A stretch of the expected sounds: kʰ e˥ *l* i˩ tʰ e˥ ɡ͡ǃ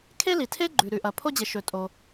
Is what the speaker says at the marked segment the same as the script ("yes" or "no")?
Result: yes